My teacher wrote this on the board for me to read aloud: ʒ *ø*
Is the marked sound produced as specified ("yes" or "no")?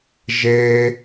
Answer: no